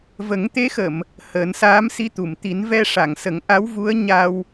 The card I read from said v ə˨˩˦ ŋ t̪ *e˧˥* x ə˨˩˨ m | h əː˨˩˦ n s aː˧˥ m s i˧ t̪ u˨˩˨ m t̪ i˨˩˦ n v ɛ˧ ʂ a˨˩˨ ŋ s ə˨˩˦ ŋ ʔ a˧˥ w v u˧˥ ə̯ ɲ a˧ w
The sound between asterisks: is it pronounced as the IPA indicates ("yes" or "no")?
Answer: yes